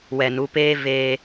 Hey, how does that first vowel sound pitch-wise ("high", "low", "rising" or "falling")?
low